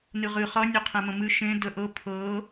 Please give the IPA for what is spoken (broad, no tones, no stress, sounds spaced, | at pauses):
n ɨ ʁ ɨ χ ʌ nʲ ʌ qʰ ẽ m ə̃ m ɨ ʃ ẽ d ə ʔ ɤ pʰ ɤ